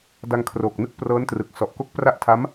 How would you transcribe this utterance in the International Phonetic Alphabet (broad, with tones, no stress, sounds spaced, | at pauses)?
d a˧ ŋ kʰ r oː˨˩ k̚ n ɯ˦˥ k̚ p r ɤː˦˥ n t r ɯ˨˩ k̚ s ɔ˨˩ ʔ k o˦˥ k̚ p r a˦˥ ʔ tʰ a˦˥ m